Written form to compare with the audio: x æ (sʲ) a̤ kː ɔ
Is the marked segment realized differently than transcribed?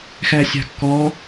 no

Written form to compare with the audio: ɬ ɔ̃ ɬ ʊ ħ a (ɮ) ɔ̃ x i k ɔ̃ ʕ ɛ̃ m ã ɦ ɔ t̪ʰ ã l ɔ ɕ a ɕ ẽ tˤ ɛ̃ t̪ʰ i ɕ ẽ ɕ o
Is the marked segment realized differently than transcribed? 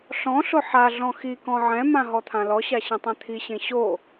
no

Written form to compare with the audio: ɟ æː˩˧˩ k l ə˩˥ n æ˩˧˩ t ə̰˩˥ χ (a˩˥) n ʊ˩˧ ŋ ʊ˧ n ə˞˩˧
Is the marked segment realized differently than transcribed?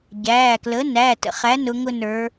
yes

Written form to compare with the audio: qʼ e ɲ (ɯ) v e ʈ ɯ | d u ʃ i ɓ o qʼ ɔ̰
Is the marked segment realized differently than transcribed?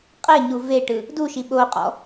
yes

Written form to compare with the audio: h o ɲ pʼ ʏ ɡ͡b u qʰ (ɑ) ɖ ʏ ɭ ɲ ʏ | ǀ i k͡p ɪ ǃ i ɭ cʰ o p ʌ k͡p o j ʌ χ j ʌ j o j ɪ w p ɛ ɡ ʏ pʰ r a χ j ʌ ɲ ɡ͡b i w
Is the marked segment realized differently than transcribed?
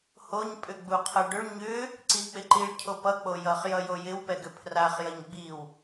yes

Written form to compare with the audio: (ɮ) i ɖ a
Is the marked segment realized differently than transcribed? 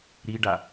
yes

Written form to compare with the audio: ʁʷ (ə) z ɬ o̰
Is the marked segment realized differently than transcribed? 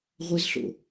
no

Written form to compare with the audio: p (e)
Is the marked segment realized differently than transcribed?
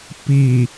yes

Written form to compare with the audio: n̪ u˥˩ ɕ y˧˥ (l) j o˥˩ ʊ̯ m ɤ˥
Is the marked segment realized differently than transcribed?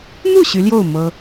no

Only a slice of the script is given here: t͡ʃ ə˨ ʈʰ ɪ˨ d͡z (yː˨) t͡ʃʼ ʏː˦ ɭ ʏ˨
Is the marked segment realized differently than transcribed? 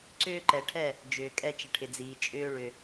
yes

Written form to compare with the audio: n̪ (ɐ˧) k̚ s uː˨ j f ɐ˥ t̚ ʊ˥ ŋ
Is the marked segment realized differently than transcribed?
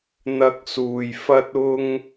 no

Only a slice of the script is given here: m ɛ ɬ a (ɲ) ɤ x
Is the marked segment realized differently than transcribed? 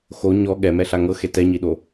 yes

